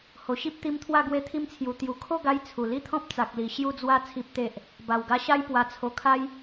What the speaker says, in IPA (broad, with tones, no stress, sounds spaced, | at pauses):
h o˨˩ ɕ i˦ p̚ t̪ i˧ m t̪ʰ w a˥˧ ɡ w e˧ t̪ʰ i˧ m t͡sʰ j u˨˩ t̪ j u˨˩ kʰ o˥˧ ɡ a˧ j t͡sʰ u˨˩ l i˥˧ t̪ʰ ɔ̃˦ p̚ t͡s a˨ k̚ l i˨˩ ɕ j u˧ d͡z w a˧ t͡sʰ i˨ p̚ t̪ e˨ ʔ | b a˨˩ w ɡ a˧ ɕ a˦ j p w a˧ t͡sʰ o˧ kʰ a˦ j